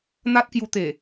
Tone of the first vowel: high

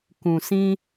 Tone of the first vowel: low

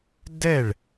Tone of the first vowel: falling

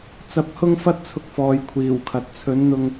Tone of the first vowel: rising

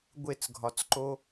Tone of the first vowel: falling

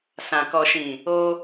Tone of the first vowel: low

